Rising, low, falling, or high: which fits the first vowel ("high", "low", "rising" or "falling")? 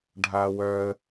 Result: low